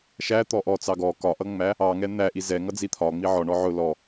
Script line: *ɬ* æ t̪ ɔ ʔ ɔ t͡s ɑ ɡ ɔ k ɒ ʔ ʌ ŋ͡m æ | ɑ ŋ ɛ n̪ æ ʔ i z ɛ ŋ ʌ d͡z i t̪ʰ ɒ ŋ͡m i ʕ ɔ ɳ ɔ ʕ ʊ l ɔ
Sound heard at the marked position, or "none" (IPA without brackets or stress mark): ʃ